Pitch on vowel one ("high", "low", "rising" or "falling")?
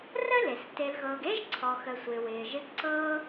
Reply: high